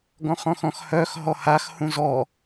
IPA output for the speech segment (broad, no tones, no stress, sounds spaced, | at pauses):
ɡ ɔ̃ χ ɔ̃ x ɔ̃ x h œ x ɦ ɔ h a x h ũ z ɔ